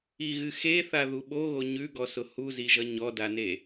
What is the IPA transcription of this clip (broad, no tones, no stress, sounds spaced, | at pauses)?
i ɣ ɨ x e θ a ð u ɓ o ɣ o ɲ ʉ ɡ ɔ s ʊ h u z i ʒ ʌ ɲ ɔ d a n e